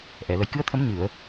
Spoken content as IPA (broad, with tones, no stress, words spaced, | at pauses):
ʔɛ˨˩˨lə˨˩jkɨ˧ə̯t̪ʰə˧˥m ɲɨ˨˩˨ə̯